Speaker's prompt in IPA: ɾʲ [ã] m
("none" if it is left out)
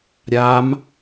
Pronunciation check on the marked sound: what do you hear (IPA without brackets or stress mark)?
a